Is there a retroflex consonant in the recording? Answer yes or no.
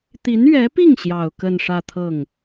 yes